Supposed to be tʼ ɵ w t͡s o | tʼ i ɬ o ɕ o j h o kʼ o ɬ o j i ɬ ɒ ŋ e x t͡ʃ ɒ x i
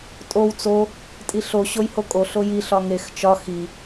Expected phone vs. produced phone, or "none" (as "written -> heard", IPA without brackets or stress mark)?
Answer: ɵ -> o